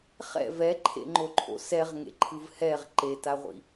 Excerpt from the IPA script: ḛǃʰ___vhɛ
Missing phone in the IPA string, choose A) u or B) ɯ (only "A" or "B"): B